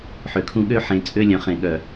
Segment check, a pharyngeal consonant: present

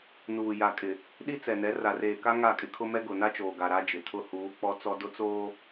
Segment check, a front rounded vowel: absent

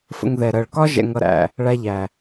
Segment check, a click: absent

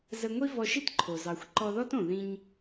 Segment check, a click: present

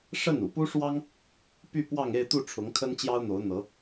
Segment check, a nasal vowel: absent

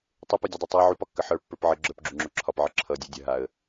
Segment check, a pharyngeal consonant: present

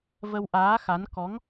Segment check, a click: absent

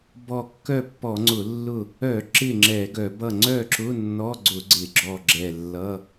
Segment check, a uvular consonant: absent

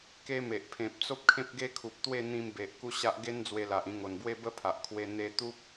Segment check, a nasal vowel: present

